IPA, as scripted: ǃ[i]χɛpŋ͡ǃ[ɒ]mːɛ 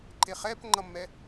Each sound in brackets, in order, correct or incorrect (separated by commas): incorrect, incorrect